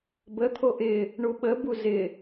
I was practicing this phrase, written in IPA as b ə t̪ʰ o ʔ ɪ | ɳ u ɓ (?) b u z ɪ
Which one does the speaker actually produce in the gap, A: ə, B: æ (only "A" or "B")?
A